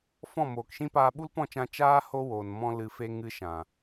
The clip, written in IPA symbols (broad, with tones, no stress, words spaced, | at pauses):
fɔ̃˦˨moː˨kʃĩ˦paː˧ ɓu˦lpɔ̃˦˨t͡ʃã˧ t͡ʃaː˦ ho˦woː˨n mɔ̃˦lɨ˧ fe˧ ŋɨ˧ʃã˨